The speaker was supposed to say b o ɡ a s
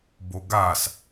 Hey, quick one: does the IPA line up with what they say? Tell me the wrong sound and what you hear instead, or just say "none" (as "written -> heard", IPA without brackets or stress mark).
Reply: none